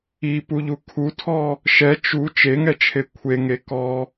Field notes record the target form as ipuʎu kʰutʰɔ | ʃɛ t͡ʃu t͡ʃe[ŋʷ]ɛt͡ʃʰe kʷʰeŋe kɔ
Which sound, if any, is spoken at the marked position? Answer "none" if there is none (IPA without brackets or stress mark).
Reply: ŋ